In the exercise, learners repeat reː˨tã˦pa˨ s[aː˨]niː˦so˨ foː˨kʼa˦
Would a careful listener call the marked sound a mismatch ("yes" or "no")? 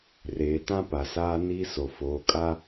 yes